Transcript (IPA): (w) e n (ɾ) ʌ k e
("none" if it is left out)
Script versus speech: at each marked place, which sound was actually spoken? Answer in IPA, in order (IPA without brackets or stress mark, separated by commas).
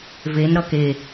v, ɾ